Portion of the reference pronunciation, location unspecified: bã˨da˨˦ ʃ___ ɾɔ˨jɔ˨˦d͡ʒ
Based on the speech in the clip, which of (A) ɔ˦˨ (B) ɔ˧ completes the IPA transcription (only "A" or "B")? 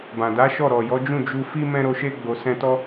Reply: A